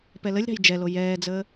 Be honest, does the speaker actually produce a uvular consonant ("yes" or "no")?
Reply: no